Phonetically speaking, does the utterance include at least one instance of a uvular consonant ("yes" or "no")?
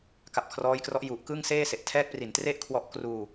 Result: no